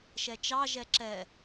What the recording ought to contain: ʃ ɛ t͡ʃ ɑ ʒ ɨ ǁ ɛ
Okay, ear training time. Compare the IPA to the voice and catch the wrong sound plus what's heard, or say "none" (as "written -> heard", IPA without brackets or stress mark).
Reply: ɨ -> ɛ